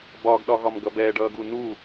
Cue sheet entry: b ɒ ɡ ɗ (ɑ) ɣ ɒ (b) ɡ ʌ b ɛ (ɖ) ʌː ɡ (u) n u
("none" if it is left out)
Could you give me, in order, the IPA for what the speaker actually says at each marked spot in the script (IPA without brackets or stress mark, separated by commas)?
ɒ, m, ɖ, u